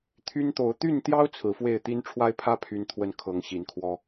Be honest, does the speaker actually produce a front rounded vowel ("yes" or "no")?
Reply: yes